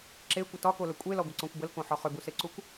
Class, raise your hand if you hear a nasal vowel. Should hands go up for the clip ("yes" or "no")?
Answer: yes